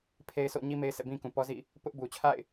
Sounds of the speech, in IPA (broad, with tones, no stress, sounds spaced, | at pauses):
pʰ e˦ ɪ̯ sʰ o̰˦˨ ɲ i˦ m e˦ ɪ̯ sʰ ɛ̰˦˨ b ĩ˦ k ũ˨ p ɔ˦ z ḭ˦˨ | p ʊ˦ ʔ b u˨ t͡ɕʰ a̰˦˨ ɪ̯